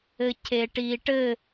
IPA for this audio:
ɘcʰeʈiʈɘ

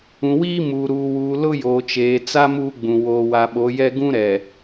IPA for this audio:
ũ˨wiː˦ muː˨ɾuː˨wuː˨ lʊ˦joː˨t͡ʃeː˨t͡sa˦ muː˦ɡ͡bũ˨ woː˨wa˨ɓo˨˦jɛ˦ ɡũ˦ɾɛ˨

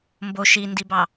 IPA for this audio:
mbo ʃindibɑ

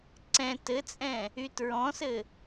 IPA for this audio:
ǀɛ̃ tɘt͡sʼɛ̃ | ytɹɔ̃sɘ

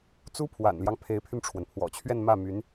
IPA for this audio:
t͡su˥pʰwa̰˨˩nljɑ˦ŋ pʰe˧˥ɪ̯pʰy˧nʈ͡ʂʰwə˩n pʰwɔ̰˨˩t͡ɕʰɥɛ˥˧nmä˥˩my˧˥n

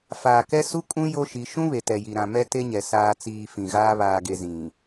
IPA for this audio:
faː˨kɛ˦su˦kʼũ˦ jo˦ʃi˨˦ ʃũ˦βe˨tɛ˨ji˨ ɾã˨mɛ˦ te˦ɲɛ˨ saː˨t͡siː˨ fĩ˨ɣaː˦ βaː˨ɡe˨ zĩ˨

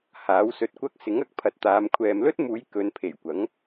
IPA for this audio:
haː˨˥wsɵ˧t̚kʷɐ˥k̚ sɪ˨˥ŋɐ˧k̚pʰɐ˨t̚t̪aː˨˧m kʷʰɛː˨mlɵ˥t̚muː˨˧j kɵ˨˧npʰe˨˩jkʷɐ˨˥ŋ

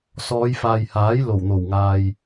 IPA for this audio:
sɔː˨˧jfaː˨jhaː˨˥j lo˨˩wn̪o˨˩wŋaː˨j

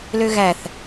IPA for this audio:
løɣæθ

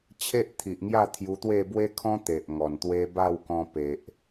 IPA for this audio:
t͡ɕʰe˦ʔt̪ʰi˨ʔŋja˥˧ t̪ʰju˧t̪we˥˧ bwe˦kʰɔ̃˦ t̪e˨ʔŋɔ˨˩nt̪we˦ ba˥˧w kɔ̃˧pe˨ʔ

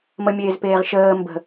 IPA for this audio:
məmʲeːzpeːʁ ʃəː mbə̤

